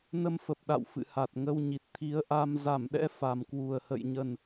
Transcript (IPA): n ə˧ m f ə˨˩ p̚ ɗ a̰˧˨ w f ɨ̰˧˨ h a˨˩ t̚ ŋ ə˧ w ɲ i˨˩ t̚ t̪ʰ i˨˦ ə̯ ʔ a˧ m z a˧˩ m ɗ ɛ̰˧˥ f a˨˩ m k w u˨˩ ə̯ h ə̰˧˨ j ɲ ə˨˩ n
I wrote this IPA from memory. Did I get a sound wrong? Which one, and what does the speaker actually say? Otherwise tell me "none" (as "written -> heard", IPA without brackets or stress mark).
none